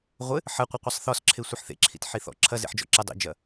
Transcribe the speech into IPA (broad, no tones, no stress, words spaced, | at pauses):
ʁʷɘ | ħɐqʷɐqʷɘsˤ θɔsǁʰe sʷiħθḛǁʰḭt ħiθɔ̰ ǁʰɐzḛħd͡ʒɔ̰ ǁɘ dˤḭd͡ʒɐ